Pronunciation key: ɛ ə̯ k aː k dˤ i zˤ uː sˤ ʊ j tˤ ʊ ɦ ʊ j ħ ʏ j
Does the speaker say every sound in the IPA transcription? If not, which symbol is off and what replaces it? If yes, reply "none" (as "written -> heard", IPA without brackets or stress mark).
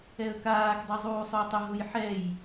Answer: ʏ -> ɛ